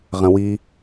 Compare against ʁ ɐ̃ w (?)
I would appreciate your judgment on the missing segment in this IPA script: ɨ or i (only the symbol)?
i